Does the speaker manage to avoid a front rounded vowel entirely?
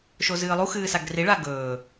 yes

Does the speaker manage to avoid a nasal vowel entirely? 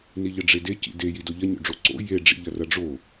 yes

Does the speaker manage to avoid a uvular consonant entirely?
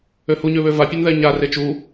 yes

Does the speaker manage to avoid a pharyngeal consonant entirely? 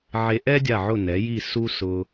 no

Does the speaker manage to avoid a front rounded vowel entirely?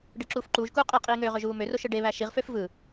no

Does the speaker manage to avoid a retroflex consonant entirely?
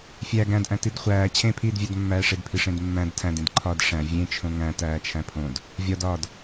no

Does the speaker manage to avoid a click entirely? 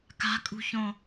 yes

